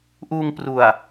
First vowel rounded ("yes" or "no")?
yes